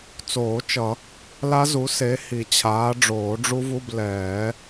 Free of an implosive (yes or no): yes